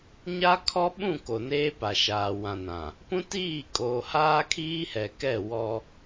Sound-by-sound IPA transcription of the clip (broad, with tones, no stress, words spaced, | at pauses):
ɲa˦kʰɔ˦ɓũ˦˨ ko˨neː˦pa˨ʃaː˨ wã˨nã˨ | pũ˦tiː˦˨kʼoː˨ haː˦kʰiː˦hɛ˨kɛ˦˨ wɔ˦